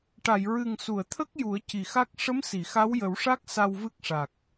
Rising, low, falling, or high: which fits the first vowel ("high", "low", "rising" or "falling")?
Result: low